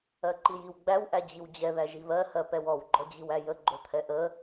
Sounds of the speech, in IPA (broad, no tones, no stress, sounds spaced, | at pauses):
ɜ ǃ i j i w ɡ͡b æ w ʔ æ d͡ʑ i w d͡ʑ ɛ ð æ ʒ i β ɜ h ɜ p ɛ w ɔ w ɡ͡ǃ ɔ d͡ʑ i w æ j ə ɡ͡ǃ o t̪ʰ ɛ ʔ ə